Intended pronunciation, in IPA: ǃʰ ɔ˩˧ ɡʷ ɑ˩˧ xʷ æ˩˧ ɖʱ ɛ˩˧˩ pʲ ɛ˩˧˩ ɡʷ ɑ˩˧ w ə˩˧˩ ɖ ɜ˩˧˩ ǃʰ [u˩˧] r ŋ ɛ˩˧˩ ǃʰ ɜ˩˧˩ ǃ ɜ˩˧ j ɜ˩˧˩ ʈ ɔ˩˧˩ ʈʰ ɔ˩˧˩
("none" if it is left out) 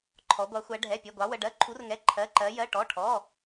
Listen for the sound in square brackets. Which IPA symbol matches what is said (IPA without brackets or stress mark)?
u˩˧